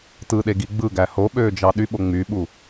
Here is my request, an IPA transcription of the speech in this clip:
t ɯ ɗ e ɡ i ɡ͡b ɯ ɡ æ h o ɓ øː d͡ʒ ɑ ɗ y ɓ o ŋ͡m y ɓ u

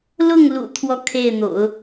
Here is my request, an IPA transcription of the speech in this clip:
l ʊ˥˩ ŋ l ṵ˨˩ t̪ʰ w ɔ˥˧ kʰ e˥˩ ɪ̯ n̪ o̰˨˩˦ ʊ̯

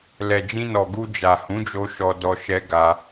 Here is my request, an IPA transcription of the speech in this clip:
l ɛ˨ d͡ʒ ĩ˧ n ɔ˨ ɡ u˧ d͡ʒ a˨ h ũ˨˦ d͡ʒ o˧ ʃ ɔ˧ d ɔ˧ ʃ ɛ˧ ɡ a˧

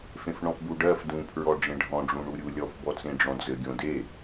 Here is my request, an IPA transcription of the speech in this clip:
f ẽ f ɳ ɔ̃ f b u ɖ ɜ f d ũ pʰ ɹ ɔ ɖ͡ʐ ẽ ɖʱ ɔ̃ ɖ͡ʐ ũ ɳ u ɾʲ u lʲ ɔ f b ɔ t͡s ẽ ɖ͡ʐ ɔ̃ d͡z ɘ ɡʲ õ d e

